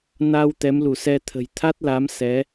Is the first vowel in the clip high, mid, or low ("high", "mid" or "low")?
low